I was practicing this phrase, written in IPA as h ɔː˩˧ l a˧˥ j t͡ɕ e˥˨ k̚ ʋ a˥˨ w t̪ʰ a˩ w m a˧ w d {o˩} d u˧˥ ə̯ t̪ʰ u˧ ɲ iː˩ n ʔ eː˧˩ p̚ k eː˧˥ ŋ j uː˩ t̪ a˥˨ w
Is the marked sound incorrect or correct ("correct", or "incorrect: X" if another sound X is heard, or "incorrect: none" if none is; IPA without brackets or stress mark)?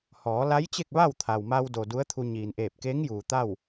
correct